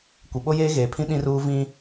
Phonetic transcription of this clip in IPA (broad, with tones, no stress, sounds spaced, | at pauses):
kʷ e˨ ɓ o˦ j eː˦ ɣ eː˨ pʰ ĩ˦ ɗ ĩ˦ r uː˦ v ĩ˦